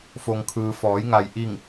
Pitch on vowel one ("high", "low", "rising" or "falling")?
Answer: low